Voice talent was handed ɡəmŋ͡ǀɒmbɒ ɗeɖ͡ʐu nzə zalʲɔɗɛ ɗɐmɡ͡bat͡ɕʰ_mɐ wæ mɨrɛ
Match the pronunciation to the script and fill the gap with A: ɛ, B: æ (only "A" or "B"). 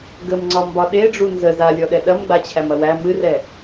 B